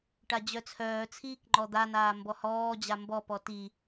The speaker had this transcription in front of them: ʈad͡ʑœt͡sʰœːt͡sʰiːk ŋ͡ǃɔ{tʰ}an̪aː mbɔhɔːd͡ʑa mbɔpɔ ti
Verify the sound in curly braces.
incorrect: d̪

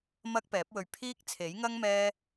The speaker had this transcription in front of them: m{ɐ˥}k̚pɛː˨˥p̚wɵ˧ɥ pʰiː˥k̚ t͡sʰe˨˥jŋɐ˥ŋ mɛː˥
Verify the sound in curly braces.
correct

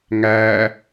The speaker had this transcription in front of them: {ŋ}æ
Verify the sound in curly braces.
correct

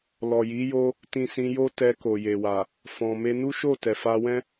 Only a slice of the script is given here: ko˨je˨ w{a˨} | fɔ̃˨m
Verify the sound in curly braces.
correct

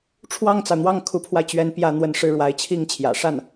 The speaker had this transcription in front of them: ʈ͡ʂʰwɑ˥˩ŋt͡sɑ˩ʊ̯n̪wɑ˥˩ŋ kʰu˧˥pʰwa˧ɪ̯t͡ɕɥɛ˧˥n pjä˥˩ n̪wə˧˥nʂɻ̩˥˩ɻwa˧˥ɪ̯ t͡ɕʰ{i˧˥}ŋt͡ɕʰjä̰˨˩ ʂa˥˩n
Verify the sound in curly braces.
incorrect: i˥˩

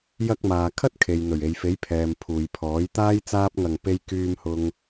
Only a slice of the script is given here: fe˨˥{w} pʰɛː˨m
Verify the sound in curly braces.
incorrect: j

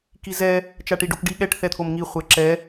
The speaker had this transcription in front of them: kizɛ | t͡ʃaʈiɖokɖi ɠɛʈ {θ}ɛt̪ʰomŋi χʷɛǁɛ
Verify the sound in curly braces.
correct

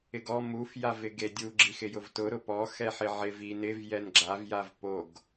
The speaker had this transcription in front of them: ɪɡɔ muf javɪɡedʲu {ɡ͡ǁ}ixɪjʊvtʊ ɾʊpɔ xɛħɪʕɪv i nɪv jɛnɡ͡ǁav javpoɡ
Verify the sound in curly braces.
correct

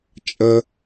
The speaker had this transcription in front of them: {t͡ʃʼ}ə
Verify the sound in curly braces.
correct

